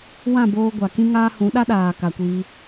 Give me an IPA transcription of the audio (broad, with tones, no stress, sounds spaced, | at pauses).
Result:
w ã˦˨ b oː˧ ɡʷ a˨ k ĩ˦ ŋ aː˦ h ũ˨˦ ɗ a˦ ɗ aː˨ k a˨ kʷ iː˧